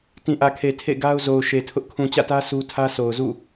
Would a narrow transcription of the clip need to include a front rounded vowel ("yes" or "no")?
no